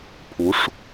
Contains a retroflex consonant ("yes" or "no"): yes